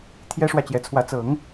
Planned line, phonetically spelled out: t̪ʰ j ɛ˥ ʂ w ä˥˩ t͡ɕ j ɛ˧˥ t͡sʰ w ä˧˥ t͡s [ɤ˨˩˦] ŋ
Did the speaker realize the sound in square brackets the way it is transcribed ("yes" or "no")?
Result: yes